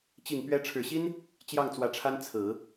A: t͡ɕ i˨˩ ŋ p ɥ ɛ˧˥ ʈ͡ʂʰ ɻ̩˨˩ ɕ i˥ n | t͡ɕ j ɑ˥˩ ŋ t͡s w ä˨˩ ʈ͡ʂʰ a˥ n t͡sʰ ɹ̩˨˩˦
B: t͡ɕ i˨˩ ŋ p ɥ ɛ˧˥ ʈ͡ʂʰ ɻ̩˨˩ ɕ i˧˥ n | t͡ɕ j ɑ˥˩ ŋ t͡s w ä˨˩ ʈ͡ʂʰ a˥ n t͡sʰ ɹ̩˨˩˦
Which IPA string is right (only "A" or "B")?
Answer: A